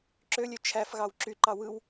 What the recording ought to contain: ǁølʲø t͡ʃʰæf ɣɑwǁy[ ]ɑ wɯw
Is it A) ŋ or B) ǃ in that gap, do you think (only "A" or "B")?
B